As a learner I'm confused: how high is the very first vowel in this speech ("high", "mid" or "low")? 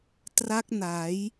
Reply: low